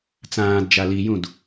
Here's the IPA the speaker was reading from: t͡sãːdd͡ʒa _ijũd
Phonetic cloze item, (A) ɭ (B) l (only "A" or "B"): B